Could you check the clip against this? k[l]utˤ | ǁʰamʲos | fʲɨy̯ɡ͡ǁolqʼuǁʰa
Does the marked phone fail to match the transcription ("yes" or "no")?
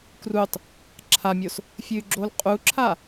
yes